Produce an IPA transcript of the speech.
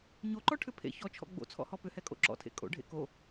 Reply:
ɲ o ǃ ɔ ʈʰ ʏ pʰ ḛ ç ɔ t͡ʃʰ ɔ̰ ɡ͡b o̰ t͡sʰ ɔ̰ h ɔ p ʏ h ɛ kʼ o̰ ǁ ɔ̰ tʰ ḛ kʼ o̰ ɖʱ ḛ k o

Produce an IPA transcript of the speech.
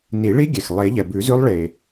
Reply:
n i˨˩˦ ɭ i˦˥ ɡʲ ɛ˩ x lˠ e˨˩˦ ʎ ɛ˩ b ʉ˨˩˦ z ʉ˦˥ lˠ ɭ e˩

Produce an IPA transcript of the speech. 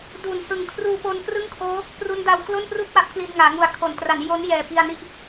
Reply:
d u˩˦ n h ɯ˨˩ ŋ kʰ r uː˧ p o˧ n k r ɯ˥˩ ŋ kʰ oː˦˥ | p r u˦˥ n d a˧ w k l o˥˩ n p r u˥˩ k̚ w a˦˥ p̚ k l i˧ n ŋ aː˩˦ ŋ u˨˩ a̯ kʰ o˩˦ n t r a˩˦ n j o˦˥ n j ɛː˨˩ p i˧ a̯ n i˥˩ ʔ

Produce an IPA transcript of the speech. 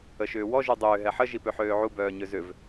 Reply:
ə ʃ ʏː w ɔ ʒ y dˤ ʏː ɦ ɛ ħ ə ʒ i p ø ħ øː ʕ u b œː ɲ ø z ʏ v

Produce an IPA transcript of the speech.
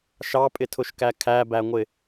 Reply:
ʃ ɑ pʼ ɪ tʰ ʊ ʃ k æ kʰ æ b æ ŋʷ ɪ

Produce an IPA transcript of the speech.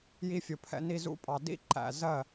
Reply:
j i˧ fʲ ʊ˨ pʰ ɛ̰˧ n i˧ z ṵ˦ pʼ ɑ˧ d ḭ˦ ǃ æ̰˨ z ɜ˦˨

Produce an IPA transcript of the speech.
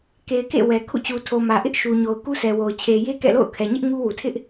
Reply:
k e˨ ɪ̯ k ḛ˦˨ w ɛ˨ kʰ ṵ˦˨ t͡ɕ u˨ tʰ o˨ m ä˨ ʔ ɪ˦ ʔ ʃ u˨ ɲ o˨ ʊ̯ k u˦ sʰ ɛ˨ w o˨ ʊ̯ t͡ɕʰ e˨ j e˦ k ɛ̰˦˨ l o̰˦˨ ʊ̯ kʰ ɛ˨ ɲ ɪ˦ ʔ ŋ u˦ w u˨ tʰ ɪ˦ ʔ

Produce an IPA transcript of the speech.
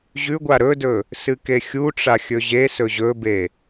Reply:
ʑ ʉ ɡʷ a ɾ ɵ d ɵ | s ɨ k e xʲ u ʈ͡ʂ a xʲ ɵ ʑ e s ɵ ʑ ɵ b e

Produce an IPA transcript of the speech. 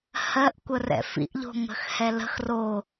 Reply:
h ɜ ʔ kʷ ə r ɛ̰ f ḭ ʔ ʎ o̤ ŋ ə̤ x h ɛ l ə̤ x r o

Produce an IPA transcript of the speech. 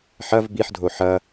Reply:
ħ ɐ v b i ħ dʱ o ħ ɐ

